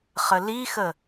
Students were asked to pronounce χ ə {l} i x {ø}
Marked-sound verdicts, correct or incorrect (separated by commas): correct, incorrect